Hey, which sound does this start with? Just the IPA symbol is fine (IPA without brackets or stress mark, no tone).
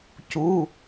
c